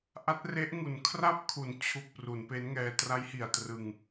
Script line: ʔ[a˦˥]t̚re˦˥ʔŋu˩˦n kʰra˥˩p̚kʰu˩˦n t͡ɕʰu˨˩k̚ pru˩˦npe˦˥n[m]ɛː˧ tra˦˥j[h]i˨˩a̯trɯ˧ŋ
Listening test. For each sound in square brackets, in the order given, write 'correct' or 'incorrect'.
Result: correct, incorrect: ŋ, correct

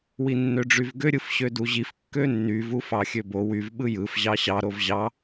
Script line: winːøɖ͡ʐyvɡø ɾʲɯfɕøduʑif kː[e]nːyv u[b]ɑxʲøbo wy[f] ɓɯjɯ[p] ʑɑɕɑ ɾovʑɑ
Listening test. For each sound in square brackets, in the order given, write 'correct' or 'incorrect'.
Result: incorrect: ø, incorrect: f, incorrect: v, incorrect: f

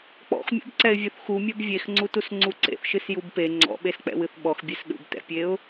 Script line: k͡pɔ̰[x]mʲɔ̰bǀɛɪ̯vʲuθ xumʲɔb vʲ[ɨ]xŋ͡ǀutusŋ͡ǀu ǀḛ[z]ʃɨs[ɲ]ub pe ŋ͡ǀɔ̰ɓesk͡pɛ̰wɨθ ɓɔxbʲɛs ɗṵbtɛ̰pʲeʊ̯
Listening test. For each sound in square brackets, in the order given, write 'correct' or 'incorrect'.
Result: correct, incorrect: e, incorrect: θ, incorrect: j

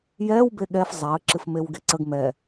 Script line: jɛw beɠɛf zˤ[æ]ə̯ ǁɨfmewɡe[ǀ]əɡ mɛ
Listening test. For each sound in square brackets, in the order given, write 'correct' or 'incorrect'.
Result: correct, correct

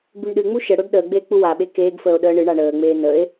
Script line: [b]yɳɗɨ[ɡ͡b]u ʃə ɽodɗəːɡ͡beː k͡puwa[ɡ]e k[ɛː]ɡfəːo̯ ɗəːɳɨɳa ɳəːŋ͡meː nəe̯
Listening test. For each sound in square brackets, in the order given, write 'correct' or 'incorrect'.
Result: correct, incorrect: ŋ͡m, incorrect: ɓ, incorrect: eː

